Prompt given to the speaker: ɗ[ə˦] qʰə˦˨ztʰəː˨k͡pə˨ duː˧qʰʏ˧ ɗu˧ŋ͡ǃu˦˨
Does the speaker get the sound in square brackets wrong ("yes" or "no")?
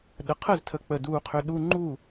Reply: yes